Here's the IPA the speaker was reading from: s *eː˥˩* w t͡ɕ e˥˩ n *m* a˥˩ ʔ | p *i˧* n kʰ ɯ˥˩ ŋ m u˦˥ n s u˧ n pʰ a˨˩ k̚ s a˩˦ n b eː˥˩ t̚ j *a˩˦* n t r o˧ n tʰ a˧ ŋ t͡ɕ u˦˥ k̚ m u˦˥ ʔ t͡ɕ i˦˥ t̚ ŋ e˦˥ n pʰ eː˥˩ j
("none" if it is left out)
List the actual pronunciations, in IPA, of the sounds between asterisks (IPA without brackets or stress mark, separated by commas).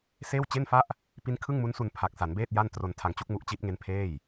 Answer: eː˥˩, f, i˦˥, a˥˩